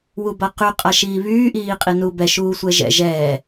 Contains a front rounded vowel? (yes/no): yes